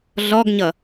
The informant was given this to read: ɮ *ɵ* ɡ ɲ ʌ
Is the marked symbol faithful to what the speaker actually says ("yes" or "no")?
no